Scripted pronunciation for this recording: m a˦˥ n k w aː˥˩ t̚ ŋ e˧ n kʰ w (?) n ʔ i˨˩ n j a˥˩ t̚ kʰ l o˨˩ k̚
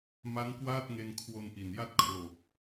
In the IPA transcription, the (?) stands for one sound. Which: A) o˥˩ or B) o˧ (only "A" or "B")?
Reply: B